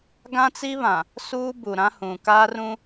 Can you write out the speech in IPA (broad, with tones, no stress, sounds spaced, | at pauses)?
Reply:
ɡ ã˦ t͡s i˦ β ã˨ | s uː˦ b u˨ ɾ ã˦ h ũ˨ k aː˦ r ũ˦